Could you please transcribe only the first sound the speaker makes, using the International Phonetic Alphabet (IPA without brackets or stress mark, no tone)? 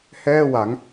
h